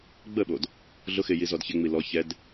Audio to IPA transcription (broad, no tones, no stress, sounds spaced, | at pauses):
ɡ͡b ə ɓ o d | ɮ ʊ x ɪ j i z ɔ d ç ɪ ŋ͡m i l ɔ ç ɛ d